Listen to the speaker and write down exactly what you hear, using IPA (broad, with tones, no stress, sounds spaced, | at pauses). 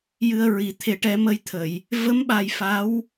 j ɨ˧ ə̯ ɹ i˨˩˦ t̪ʰ e˨˩ ʈ ɛ˨˩˦ m ə˧ j t̪ʰ ə˨˩˨ j | v ə˧˥ m ɓ a˨˩ j f a˧˥ w